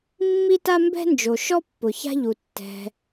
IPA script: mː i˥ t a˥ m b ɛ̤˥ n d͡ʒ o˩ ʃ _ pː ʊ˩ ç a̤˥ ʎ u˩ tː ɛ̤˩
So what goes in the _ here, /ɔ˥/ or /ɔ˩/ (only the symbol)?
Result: ɔ˥